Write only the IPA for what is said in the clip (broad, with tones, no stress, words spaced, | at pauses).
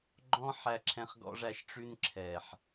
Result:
ɡ͡ǃɔ̃˦ ħæ˧ǁʰɛ̃˧χɡɔ̰˧ʐæ˧ʃ ʈ͡ʂʉ˧nǁʰɛ˨ħ